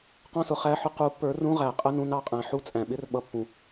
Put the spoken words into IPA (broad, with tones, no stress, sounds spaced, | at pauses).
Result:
q ɔ̃˧ s ʊ˩ χ æ˧˥˧ ħ ʊ˧ q u˨˥ pː ə˞˨˥ r ũ˧˥˧ ʁ æ˩ qʼ ə˧˥˧ n ũ˧ n ɑ˩ qʼ æ̃˩ ħ u˧˥˧ t͡sʼ æ̃˩ ɓ ɪ˧˥˧ r ɓ ʌ˨˥ pː ũ˩